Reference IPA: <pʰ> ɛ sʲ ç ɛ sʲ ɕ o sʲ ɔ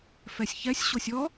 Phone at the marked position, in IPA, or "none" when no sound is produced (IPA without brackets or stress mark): f